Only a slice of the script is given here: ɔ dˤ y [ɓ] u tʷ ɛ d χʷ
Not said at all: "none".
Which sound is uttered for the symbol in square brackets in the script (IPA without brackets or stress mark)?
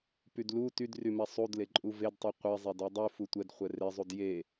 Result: f